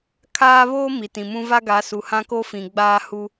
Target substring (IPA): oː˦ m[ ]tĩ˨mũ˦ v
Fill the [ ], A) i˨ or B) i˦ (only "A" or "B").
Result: A